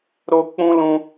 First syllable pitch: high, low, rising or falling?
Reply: high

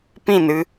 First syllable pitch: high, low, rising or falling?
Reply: falling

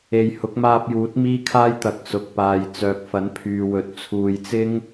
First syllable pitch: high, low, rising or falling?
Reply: low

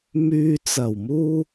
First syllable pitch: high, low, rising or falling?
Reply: low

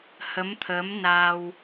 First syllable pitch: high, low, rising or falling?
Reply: rising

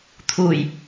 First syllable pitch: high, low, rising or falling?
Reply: low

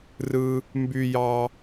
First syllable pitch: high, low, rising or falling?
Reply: low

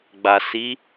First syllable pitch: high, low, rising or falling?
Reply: low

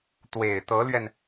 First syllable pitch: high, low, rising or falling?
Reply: low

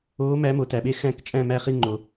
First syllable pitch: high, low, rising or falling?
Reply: rising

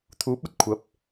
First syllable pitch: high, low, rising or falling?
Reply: rising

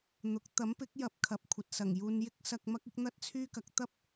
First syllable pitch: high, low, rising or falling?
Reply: rising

